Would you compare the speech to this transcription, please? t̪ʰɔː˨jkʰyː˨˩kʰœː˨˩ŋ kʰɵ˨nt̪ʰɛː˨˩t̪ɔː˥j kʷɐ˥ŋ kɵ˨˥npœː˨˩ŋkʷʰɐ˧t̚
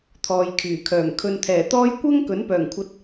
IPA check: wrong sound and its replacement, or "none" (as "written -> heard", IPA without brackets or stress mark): none